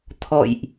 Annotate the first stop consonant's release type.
aspirated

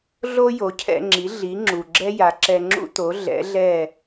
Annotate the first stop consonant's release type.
aspirated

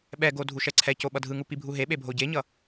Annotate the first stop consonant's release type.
implosive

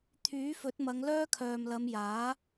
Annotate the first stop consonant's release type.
aspirated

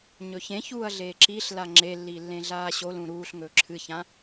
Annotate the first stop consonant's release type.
click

